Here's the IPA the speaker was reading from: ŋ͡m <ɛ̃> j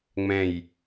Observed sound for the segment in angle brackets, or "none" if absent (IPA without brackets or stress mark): ɛ̃